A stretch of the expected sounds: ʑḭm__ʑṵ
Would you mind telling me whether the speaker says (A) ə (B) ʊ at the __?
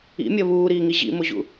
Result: B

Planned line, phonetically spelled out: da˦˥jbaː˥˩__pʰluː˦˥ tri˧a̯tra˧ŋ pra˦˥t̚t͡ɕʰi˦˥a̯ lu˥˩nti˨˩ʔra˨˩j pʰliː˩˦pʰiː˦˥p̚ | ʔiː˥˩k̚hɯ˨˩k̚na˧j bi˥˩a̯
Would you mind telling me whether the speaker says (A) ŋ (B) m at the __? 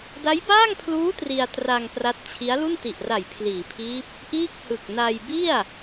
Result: A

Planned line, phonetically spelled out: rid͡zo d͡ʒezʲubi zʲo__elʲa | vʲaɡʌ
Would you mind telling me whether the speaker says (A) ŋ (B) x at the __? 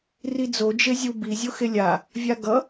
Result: B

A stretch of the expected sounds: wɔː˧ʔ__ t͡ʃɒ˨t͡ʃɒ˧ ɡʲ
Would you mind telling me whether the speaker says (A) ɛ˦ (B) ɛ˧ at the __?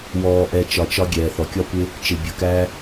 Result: B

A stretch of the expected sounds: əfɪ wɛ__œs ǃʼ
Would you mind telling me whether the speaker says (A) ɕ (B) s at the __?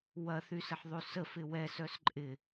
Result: B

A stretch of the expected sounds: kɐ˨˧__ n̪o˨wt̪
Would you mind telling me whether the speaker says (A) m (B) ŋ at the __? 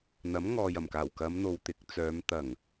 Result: A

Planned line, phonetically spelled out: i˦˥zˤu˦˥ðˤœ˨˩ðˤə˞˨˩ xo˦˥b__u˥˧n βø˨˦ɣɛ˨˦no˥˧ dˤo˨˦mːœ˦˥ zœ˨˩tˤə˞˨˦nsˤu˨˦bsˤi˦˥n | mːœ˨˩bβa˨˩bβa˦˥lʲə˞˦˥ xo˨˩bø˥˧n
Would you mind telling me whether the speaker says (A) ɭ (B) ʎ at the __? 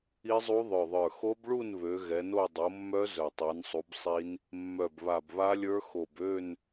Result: A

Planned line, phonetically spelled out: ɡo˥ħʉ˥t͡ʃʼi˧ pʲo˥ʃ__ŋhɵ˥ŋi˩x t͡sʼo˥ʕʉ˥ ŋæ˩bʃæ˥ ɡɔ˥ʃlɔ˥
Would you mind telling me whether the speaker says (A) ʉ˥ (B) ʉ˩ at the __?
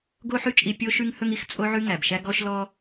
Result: A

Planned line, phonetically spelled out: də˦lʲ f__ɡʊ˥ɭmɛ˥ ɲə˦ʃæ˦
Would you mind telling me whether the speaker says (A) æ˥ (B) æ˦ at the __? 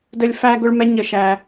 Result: A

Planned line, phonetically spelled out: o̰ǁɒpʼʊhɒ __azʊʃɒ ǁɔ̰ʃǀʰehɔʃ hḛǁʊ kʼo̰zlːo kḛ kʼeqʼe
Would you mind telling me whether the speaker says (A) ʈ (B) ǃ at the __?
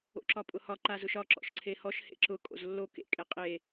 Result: B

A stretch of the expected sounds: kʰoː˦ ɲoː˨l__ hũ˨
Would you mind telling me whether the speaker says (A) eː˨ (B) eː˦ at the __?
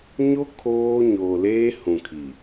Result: B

